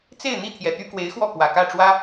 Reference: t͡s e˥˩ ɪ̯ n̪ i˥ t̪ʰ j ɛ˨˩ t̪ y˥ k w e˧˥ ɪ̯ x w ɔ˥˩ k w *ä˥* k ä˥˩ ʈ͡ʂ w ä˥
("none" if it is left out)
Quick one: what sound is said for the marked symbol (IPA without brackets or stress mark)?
ä˨˩